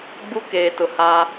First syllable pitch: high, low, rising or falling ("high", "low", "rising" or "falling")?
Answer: high